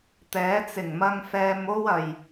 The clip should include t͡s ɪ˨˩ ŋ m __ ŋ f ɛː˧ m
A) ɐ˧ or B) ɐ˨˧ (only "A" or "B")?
A